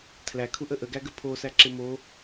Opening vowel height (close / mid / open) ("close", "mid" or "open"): open